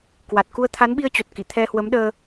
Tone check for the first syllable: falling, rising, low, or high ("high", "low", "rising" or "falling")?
low